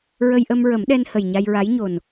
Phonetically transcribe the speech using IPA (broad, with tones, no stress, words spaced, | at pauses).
ɹə˧jʔə˧mɹə˨˩˦mɗɛ˧n hə˨˩jɲa˧jɹa˧˥jɲo˨˩n